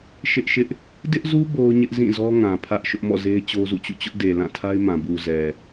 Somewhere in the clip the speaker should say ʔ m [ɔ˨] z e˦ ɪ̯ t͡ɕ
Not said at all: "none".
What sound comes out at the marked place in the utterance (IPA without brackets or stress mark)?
ɔ̰˦˨